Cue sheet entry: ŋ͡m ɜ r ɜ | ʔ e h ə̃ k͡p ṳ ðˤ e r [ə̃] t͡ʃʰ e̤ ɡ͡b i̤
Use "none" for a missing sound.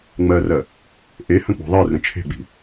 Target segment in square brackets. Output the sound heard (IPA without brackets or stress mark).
ə̃